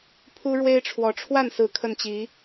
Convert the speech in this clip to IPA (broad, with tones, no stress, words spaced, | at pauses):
pʰu˥ɻwe˥ɪ̯ʈ͡ʂʰwɔ˧˥ ʈ͡ʂʰwa˥˩nsɹ̩˧˥ kʰə˥˩nt͡ɕi˧˥